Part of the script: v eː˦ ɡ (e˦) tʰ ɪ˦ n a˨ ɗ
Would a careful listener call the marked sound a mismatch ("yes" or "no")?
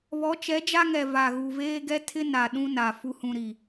yes